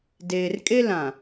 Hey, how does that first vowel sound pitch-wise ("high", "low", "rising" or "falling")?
low